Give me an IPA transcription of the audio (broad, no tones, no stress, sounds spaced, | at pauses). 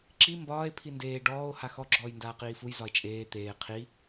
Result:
ǁ i m b ɒː e̯ pʰ i n d eː ɖ ɔː o̯ h a x ɔ ɡ͡ǁ ɔː j n d aː q iː f u j z ɒ e̯ t͡ʃʼ eː t̪ eː qʰ i